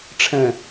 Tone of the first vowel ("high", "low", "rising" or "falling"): low